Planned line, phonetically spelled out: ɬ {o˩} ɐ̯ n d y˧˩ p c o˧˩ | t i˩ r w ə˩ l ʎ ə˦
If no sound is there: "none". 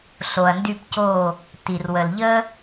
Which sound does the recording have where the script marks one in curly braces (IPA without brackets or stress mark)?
o˩